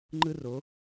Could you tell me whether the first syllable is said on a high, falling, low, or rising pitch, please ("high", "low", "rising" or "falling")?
high